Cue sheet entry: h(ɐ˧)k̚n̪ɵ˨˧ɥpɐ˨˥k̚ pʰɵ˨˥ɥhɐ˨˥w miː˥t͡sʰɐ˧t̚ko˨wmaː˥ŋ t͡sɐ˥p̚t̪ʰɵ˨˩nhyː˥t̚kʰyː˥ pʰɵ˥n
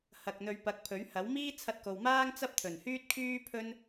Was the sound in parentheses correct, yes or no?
no